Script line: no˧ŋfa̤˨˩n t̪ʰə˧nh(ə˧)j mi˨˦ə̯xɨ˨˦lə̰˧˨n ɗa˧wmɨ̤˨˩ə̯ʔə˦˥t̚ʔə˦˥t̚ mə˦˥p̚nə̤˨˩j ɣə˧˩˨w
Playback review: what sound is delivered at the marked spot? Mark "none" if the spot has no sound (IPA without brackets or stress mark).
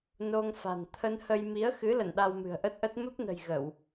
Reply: ə˧